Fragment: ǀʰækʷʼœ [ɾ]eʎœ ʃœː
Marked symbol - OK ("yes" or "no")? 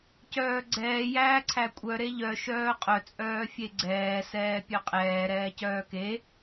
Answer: yes